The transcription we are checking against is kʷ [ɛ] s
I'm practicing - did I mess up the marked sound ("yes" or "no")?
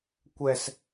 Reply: no